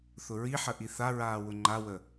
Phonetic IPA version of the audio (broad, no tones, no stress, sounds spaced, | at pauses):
θ ʊ ɹ i ħ ə ʔ i θ a ɹ aː w ʊ ŋ͡ǃ a w ə